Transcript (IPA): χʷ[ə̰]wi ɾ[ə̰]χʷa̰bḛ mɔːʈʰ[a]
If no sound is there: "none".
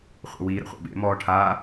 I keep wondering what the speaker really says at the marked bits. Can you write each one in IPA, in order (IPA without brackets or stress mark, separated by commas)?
ə̰, ə̰, a